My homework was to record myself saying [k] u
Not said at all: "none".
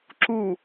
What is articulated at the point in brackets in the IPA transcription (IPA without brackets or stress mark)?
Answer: ǁ